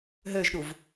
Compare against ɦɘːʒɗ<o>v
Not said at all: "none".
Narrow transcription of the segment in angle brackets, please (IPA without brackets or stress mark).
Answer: u